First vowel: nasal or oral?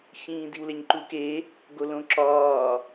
nasal